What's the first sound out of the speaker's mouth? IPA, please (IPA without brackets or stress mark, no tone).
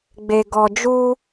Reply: ɡ͡b